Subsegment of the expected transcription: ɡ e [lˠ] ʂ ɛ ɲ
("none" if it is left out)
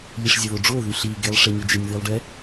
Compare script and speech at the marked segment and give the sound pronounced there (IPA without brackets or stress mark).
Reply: lˠ